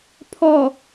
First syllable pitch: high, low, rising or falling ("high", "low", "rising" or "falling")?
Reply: low